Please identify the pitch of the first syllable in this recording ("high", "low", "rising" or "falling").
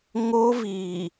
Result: high